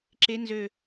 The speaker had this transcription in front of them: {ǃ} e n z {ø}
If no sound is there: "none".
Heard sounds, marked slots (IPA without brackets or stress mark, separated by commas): ǁ, ø